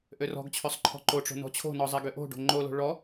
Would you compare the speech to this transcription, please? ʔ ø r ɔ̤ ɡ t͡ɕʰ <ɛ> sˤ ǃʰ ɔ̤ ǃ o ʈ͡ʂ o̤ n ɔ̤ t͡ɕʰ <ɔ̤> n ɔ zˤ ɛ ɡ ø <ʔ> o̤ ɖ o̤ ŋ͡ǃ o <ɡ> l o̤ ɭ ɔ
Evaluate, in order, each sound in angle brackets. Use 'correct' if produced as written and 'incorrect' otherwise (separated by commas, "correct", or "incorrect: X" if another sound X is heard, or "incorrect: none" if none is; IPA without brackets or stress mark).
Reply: incorrect: ø, incorrect: o̤, correct, incorrect: none